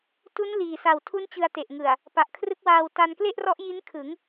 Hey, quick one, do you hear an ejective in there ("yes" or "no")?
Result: no